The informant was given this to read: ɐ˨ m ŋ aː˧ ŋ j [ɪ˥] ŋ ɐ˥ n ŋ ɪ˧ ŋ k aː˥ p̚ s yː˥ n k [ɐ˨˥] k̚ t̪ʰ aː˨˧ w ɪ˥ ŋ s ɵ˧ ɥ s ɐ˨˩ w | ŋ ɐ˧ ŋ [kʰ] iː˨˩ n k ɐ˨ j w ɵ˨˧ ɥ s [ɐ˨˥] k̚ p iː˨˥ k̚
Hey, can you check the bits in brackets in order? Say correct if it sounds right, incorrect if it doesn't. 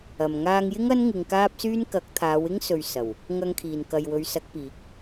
correct, correct, correct, correct

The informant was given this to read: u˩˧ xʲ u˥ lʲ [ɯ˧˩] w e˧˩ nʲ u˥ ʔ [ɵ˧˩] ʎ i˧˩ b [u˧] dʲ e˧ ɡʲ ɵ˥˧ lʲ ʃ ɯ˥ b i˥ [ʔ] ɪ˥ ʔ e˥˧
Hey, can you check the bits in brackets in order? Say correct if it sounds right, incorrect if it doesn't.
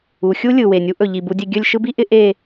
correct, correct, correct, correct

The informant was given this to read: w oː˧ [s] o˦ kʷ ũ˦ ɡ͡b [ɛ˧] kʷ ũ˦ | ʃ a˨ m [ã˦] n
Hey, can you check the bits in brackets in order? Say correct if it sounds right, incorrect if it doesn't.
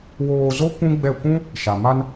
incorrect: z, incorrect: ɛ˦˨, incorrect: a˦

